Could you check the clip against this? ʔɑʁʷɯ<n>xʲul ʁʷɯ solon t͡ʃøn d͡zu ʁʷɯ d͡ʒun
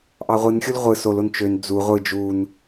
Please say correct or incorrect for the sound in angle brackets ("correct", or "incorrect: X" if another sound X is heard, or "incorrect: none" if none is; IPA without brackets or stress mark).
correct